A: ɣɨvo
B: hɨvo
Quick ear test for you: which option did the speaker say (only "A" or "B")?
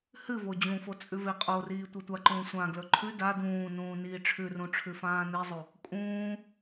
B